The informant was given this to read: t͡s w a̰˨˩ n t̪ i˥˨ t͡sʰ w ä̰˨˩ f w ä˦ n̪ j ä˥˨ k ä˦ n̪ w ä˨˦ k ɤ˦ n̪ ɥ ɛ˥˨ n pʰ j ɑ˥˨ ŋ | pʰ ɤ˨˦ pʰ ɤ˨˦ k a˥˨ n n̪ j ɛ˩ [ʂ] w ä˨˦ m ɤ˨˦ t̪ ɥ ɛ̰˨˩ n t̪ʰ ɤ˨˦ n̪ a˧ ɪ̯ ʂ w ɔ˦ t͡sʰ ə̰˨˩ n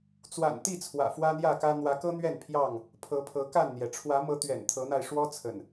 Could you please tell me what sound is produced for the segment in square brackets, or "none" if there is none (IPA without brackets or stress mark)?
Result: ʈ͡ʂʰ